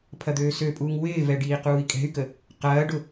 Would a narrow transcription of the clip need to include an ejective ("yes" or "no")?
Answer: yes